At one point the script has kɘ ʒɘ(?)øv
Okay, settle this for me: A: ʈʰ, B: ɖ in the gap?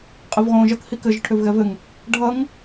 A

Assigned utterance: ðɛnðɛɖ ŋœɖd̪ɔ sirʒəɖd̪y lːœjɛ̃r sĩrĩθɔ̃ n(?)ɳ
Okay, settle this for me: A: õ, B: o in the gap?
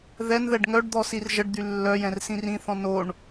B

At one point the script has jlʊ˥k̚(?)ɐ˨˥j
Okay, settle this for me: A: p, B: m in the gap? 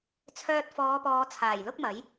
B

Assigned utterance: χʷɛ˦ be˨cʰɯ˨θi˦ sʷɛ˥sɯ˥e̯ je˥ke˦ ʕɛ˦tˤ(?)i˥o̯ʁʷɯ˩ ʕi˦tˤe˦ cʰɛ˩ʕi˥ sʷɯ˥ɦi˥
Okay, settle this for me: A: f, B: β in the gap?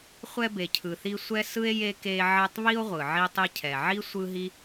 B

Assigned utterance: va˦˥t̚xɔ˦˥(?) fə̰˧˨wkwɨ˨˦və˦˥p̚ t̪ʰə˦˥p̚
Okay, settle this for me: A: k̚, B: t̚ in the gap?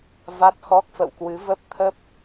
A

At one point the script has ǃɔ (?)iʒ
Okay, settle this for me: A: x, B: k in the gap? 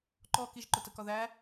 B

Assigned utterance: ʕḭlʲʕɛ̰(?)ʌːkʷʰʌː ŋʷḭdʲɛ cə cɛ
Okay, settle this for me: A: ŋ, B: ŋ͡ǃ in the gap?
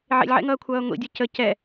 A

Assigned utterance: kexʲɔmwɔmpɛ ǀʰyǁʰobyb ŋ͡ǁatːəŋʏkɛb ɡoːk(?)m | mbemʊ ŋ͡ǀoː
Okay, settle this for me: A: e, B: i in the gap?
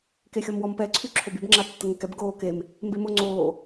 A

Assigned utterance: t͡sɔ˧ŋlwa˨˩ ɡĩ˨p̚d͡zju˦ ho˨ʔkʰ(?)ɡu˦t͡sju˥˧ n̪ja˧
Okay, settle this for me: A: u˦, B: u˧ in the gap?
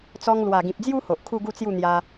A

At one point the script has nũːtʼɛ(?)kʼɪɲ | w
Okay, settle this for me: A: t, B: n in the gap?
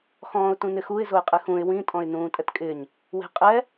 A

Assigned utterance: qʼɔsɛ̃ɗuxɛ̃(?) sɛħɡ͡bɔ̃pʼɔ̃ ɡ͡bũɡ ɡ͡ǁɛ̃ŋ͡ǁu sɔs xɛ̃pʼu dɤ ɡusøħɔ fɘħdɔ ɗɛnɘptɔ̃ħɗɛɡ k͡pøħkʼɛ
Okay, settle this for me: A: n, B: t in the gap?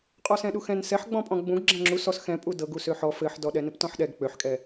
A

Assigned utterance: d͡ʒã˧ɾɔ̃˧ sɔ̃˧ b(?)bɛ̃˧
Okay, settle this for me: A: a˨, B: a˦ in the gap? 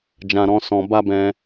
B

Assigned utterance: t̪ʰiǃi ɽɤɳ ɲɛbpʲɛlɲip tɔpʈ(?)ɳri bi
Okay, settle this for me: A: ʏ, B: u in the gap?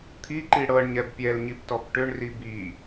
A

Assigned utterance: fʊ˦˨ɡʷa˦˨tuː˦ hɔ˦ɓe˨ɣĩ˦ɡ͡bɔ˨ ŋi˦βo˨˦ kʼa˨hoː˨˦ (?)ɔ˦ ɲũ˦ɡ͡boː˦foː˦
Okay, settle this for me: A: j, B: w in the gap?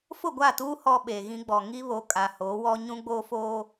B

